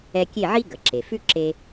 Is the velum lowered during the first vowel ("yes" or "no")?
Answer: no